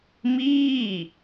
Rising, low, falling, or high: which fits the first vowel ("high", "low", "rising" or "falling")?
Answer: falling